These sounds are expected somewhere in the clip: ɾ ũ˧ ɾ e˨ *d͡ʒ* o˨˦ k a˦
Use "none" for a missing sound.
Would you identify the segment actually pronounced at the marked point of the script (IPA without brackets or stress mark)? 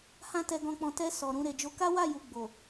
d͡ʒ